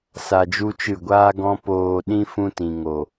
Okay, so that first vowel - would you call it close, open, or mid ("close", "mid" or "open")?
open